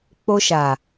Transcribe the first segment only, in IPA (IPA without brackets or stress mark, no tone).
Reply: k͡p